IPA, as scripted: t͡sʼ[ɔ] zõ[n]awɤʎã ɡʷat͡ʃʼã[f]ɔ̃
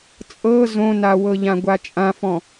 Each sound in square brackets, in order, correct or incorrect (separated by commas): incorrect, correct, correct